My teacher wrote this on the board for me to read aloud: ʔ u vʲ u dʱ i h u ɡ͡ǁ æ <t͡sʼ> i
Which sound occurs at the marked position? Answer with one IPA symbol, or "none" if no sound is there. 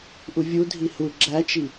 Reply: t͡ʃ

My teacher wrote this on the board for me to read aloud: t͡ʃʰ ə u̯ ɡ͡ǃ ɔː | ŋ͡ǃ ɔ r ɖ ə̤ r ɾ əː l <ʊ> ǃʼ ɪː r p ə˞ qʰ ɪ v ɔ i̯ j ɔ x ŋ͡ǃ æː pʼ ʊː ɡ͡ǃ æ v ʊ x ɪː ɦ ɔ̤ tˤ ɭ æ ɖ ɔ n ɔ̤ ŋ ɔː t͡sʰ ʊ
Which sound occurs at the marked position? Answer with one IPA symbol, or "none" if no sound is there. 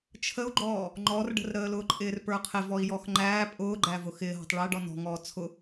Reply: ʊː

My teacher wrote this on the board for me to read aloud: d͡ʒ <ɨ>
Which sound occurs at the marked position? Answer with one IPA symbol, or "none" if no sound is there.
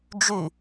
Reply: y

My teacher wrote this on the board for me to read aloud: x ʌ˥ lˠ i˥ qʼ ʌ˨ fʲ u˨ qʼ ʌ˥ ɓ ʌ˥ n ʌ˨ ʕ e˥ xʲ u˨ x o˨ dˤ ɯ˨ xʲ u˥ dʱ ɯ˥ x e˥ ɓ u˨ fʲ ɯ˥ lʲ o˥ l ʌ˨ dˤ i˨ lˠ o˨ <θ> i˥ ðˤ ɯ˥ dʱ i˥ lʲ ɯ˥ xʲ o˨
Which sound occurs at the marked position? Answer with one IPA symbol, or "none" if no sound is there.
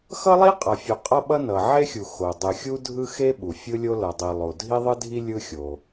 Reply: dʱ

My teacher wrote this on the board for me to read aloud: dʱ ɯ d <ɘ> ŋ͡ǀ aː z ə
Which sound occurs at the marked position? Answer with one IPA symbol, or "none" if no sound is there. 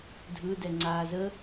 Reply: ɛ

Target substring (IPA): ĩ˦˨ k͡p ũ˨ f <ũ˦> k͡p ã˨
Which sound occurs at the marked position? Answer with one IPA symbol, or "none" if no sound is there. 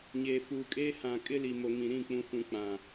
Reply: ũ˨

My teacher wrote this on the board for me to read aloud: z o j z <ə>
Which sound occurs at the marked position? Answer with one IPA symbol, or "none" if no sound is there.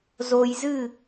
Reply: ɨ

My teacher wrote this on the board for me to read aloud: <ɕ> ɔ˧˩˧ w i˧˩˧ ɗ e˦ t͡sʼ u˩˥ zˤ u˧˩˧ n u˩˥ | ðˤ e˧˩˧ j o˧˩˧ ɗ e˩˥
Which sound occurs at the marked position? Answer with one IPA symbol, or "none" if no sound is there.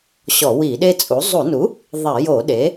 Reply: ɕ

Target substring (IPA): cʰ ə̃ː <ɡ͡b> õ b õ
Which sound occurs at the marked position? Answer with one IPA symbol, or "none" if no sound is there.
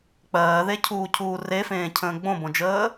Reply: ɡ͡b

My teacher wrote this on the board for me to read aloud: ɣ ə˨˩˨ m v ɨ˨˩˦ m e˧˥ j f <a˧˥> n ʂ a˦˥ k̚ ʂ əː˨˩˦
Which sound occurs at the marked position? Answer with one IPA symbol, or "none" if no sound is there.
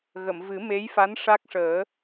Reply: a˧˥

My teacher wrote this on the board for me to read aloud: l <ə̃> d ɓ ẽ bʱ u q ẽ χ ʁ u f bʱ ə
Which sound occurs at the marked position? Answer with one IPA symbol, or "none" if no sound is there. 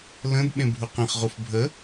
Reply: ə̃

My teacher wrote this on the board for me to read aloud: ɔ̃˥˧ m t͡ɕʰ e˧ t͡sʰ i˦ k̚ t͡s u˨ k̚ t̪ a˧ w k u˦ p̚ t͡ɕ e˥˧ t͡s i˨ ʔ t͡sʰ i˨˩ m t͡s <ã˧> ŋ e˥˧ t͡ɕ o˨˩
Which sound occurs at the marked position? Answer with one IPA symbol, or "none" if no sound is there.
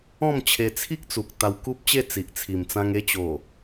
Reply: ã˧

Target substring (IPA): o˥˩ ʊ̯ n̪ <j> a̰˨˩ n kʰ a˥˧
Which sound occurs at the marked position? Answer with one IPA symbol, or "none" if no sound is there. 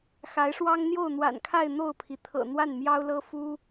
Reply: w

